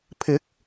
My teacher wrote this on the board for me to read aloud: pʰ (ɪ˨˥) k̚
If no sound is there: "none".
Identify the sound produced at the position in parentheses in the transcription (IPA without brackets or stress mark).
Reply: ɪ˨˥